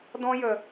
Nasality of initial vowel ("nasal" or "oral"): nasal